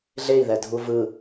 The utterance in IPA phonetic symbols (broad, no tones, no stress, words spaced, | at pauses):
ɮei̯ðɛdʱu vɯ